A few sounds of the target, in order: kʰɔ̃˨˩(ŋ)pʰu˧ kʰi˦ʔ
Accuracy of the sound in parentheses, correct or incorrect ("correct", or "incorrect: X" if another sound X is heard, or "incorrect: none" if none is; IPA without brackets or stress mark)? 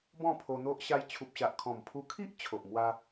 incorrect: m